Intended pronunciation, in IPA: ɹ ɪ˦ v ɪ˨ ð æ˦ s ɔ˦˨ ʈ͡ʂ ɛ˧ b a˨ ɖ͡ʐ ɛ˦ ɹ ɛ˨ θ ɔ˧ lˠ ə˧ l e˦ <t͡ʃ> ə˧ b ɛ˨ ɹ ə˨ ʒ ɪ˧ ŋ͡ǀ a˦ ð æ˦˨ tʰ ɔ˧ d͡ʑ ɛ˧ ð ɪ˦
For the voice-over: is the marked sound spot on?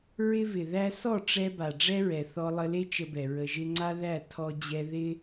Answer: yes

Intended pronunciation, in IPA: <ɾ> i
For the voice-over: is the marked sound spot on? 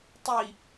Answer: no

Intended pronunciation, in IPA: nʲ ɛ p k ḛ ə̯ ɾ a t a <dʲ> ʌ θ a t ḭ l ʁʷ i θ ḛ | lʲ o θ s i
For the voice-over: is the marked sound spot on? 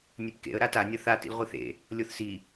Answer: no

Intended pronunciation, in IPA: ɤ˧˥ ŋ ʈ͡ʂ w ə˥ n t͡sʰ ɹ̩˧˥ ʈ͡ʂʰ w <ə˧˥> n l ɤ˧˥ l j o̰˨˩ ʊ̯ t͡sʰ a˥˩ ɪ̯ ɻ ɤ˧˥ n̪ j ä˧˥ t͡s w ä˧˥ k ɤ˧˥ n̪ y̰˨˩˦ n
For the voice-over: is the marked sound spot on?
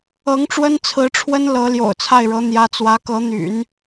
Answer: no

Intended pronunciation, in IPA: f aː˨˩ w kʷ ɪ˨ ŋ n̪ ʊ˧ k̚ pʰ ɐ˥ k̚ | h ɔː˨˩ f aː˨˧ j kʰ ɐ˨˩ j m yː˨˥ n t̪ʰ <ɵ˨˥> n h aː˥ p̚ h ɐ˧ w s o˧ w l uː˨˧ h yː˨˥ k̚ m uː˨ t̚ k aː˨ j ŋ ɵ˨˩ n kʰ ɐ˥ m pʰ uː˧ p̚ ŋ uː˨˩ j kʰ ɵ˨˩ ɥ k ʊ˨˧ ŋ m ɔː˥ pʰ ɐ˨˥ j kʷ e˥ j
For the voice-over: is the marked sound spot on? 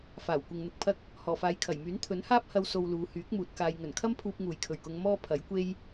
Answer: yes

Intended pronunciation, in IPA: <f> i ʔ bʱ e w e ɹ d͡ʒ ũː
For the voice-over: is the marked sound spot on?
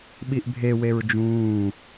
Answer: no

